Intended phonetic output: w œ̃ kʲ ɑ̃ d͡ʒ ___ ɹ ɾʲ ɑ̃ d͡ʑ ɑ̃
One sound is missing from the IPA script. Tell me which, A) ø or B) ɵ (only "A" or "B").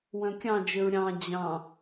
A